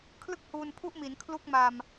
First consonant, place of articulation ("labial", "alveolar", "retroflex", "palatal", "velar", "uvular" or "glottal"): velar